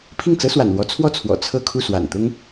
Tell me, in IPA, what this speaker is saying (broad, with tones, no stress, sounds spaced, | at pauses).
pʰ i˥˩ ŋ t͡s ɤ˥ s w a̰˨˩ n l w ɔ˧˥ t͡sʰ w ɔ˥˩ t͡sʰ w ɔ̰˨˩ t͡sʰ ɤ˥˧ kʰ u˥˩ s w a̰˨˩ n t̪ ʊ˥ ŋ